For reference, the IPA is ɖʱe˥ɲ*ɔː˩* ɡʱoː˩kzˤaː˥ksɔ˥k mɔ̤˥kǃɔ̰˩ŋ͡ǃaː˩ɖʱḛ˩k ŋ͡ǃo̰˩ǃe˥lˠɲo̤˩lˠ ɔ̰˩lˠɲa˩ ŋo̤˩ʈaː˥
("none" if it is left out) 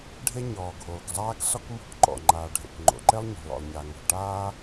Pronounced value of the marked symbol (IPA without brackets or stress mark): ɔː˩